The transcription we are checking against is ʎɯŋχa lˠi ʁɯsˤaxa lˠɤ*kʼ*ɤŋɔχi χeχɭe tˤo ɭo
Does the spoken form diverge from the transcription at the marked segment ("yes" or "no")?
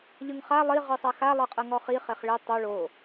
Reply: yes